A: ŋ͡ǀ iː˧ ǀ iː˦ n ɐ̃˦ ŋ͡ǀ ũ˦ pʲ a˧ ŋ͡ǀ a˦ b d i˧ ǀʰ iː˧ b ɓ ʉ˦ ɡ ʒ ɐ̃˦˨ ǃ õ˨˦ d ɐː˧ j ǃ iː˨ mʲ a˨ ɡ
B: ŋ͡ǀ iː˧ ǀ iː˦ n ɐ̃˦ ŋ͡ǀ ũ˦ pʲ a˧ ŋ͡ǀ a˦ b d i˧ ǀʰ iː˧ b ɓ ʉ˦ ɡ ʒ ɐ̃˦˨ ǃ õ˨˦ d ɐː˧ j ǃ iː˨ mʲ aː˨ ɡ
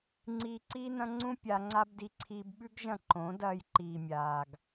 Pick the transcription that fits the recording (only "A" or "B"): B